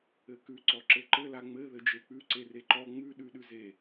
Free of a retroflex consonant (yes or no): yes